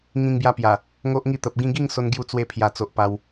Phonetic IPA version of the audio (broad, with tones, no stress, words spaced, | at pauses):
ŋĩ˧ŋbja˧pja˨˩ | ŋo˦ʔ ŋi˥˧t̪ə˨p̚ ɡĩ˧ɡi˥˧ŋ so˦nɡju˥˧ t͡swe˧pʰja˨˩t͡so˨ʔ pa˦w